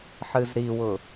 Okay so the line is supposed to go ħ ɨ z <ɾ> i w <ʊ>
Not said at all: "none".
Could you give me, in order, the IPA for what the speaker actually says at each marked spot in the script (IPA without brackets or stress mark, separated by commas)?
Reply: ɾ, ʊ